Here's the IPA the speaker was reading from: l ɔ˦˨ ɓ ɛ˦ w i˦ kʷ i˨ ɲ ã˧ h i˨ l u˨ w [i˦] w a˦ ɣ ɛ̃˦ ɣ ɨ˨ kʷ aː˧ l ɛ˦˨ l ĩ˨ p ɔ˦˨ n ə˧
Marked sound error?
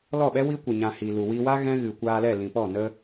yes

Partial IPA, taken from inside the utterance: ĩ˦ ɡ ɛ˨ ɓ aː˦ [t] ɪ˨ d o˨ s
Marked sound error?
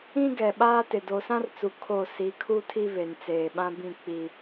no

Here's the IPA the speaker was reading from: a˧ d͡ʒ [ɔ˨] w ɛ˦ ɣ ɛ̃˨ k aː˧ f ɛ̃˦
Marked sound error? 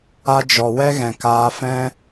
no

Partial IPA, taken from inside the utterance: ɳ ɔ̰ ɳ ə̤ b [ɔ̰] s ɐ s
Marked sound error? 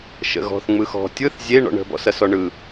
no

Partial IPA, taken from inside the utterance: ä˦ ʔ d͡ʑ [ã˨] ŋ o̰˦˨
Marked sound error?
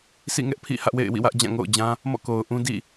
yes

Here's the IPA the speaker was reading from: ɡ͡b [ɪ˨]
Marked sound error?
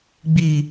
yes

